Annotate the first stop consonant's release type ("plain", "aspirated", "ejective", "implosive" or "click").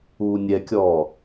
plain